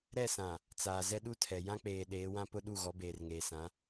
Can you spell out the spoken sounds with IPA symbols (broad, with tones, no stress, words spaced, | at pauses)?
ɾɛ˦˨sã˨ | t͡saː˨zɛ˦ɗu˦tʰɛ˨ jã˦k͡peː˨ ɗeː˨˦wã˦ pʊ˦ɗu˦˨ɣɔ˨˦ beː˨rŋeː˨sã˨˦